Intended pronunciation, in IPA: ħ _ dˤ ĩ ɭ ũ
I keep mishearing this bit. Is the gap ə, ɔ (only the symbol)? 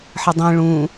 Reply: ə